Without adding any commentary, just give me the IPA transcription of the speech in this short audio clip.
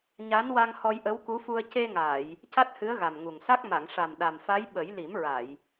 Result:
ɲ a˧˥ n w a˧ ŋ h ɔ˧ j ʔ ə˧˥ w k u˧˥ f u˧ ə̯ c e˧ ŋ aː˨˩˨ j | c a˦˥ t̚ h ɨ˧˥ ə̯ ɣ a˨˩ m ŋ u˨˩ ŋ s a˦˥ k̚ m a˨˩˨ ŋ ʂ a˨˩ m ɗ a˨˩ m f a˧˥ j ɓ ə˨˩˦ j l i˨˩˦ m ɹ a˨˩˨ j

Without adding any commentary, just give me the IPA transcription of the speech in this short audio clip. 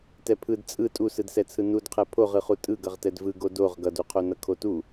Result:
t ɛ pʰ ɯ d t͡sʼ ɯ tʼ u s ɯ d s ɛ t͡sʰ ɯ n u d qʰ ɛ pʰ o ʁ ɯ χ u tʼ ɯ ɡ ʌ ʁ t ɛ d v ɯ ɡ o d o ʁ ɡ ʌ d u qʰ o n ʌ kʰ o t u

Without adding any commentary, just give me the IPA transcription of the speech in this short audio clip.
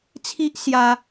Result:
t͡sʰ i˦ ʔ s j a˧

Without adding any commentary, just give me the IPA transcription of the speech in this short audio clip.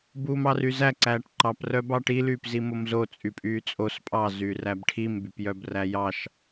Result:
b uː m ɑ r y z æ ǀ æː ʈ ǃ ɑ p r œ b ɑ ʈ i l yː p z i m o m z o t͡sʼ y pʼ yː t͡sʼ o s pʼ ɑ z yː r æ b ʈʰ i m b y p j œ b r æ j ɑ ʃ

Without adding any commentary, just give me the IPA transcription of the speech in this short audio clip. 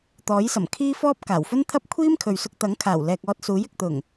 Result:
t̪ ɔː˨˥ j s ɐ˨˩ m kʰ iː˥ f ɔː˥ p̚ k aː˨˩ w f ɵ˥ n t̪ʰ ɐ˥ p̚ kʷʰ iː˥ m kʰ ɵ˨ ɥ s ʊ˧ k̚ t̪ ɐ˨˥ ŋ kʰ aː˨˩ w l ɛː˨ k̚ ɔː˧ t̚ s uː˨˥ j ɪ˨ k̚ t̪ ʊ˨˩ ŋ

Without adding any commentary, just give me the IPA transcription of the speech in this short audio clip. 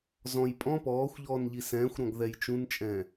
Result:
z ɔ̃ j pʼ ɔ̃ p ɔː xʷ ʎ ɔː n ʎ i s ɛ̃ː xʷ ɾ ɔ̃ ɡ ð ɛ j t͡ʃ ũ n t͡ʃʼ ɛ̃ː

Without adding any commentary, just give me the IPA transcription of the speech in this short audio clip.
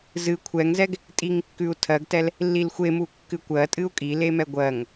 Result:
z ɨ kʷʰ ɛ ŋ z ɛ ɡ | tʼ i ŋ kː ʉ u̯ tʰ ɜ ɡ t ɛ l | lː i l xʷ e m u kː ɨ kʷ ɜ tʼ ɨ u̯ kʼ i l e m ɛ ɡʷ ɜ ŋ

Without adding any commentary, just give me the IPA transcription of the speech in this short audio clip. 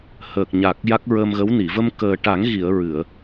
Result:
h ə˨˩ k̚ ɲ a˨˩ k̚ j a˦˥ k̚ ɹ ə˧ m ɣ ə˧˥ w n i˨˩˨ v ə˧ m k əː˨˩ ʈ a˨˩˦ ŋ ɣ i˨˩˨ ə̯ ɹ ɨ˨˩˨ ə̯

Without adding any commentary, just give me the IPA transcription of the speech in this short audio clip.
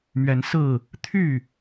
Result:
m ɥ ɛ˨˦ n s ɹ̩˥˨ | t̪ʰ y˥˨

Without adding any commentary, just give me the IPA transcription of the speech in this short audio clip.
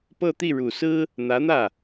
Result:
p ɤ˥˧ t̪ i˥˩ ɻ u˨˩ s ɹ̩˥ | n̪ ä˧˥ n̪ ä˥˩

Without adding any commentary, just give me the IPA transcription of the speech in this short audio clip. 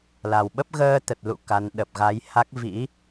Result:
l a˨˩ w ɓ ə˦˥ p̚ ɣ əː˧ t̪ ə˨˩ t̚ l ṵ˧˨ k a˨˦ n ɗ ə˨˩ p̚ ɣ a˨˦ j h a˦˥ k̚ v ḭ˧˥

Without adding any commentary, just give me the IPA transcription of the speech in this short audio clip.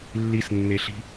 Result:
lː i s nː e ɬ i̤

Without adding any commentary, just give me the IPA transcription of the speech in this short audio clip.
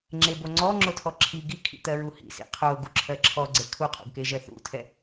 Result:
ŋ͡ǁ e b o ŋ͡ǀ ɔ ŋ͡ǁ o tʰ ɔ ǁʰ i ɡ i kʰ ḭ t̪ ɜ ɹ u h ḭ s ḭ qʰ o ɡ u ǁʰ ɜ ǁʰ ɔ ɡ͡ǀ e kʰ u qʰ ṵ ɡ k e ʒ ɜ θ ṵ tʰ ɛ

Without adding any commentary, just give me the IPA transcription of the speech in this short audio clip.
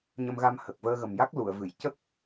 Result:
ɲ ə˧ m ɣ a˧ m h ə˨˩ k̚ v əː˧ ɣ ə˨˩ m j a˦˥ k̚ l u˨˩˨ ə̯ v ɨ˨˩˨ j c ə˦˥ k̚

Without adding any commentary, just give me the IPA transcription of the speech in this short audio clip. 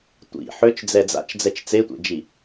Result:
tʷ ḭ ħ ø t͡ʃ d͡z ɛ d͡z a̰ t͡ʃ d͡z ɛ t͡ʃ t͡s e tʷ ḛ d͡ʒ i

